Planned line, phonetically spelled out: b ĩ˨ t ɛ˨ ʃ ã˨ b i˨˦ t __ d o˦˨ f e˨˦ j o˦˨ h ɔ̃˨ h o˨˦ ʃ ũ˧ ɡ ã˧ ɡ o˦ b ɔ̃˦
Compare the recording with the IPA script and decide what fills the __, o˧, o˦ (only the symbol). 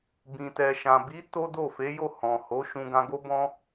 o˦